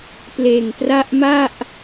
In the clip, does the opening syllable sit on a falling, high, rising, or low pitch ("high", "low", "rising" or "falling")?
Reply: low